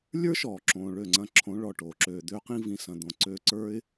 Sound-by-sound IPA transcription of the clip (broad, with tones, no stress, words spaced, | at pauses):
lʲə˞˦ʃɔː˨ǁõː˨ ɭø˦˨ŋ͡ǀɐ̃˦ ǁʰõ˨˦ɭɔ˨ ʈoː˨ǁøː˧ d̪øː˦qĩ˦ vĩ˧sɐ̃˧d̪õ˧ǀøː˦ ǀə˞˦ɪ̯